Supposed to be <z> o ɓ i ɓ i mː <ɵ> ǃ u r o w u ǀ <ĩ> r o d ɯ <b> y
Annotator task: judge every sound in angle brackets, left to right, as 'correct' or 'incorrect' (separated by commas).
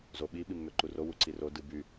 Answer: correct, incorrect, incorrect, correct